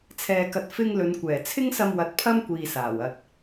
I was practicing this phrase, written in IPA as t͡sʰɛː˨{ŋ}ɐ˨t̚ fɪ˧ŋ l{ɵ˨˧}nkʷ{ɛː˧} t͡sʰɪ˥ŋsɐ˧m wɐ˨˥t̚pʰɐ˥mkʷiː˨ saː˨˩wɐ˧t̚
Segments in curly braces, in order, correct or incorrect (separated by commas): incorrect, correct, incorrect